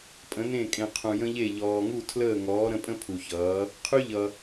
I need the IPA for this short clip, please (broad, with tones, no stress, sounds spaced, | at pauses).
pʼ ə̃˨˦ n ẽ˦˨ kʼ ẽ˨ qʰ ũ˨ j ə̃˦ ʎ e˦˨ ʎ ɔː˨ ŋ u˦˨ tʰ l əː˦˨ ŋ ɔː˨˦ ɾ ə̃˨˦ pʼ ə̃˦ pʰ u˨ ç ʌː˨˦ | qʰ y˦ ʎ ʌ˨